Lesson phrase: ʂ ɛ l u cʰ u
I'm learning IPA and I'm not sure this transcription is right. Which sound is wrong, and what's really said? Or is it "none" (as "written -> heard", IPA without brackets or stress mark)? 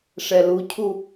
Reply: none